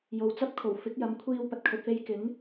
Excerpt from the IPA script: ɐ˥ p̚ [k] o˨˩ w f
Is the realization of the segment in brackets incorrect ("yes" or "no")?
yes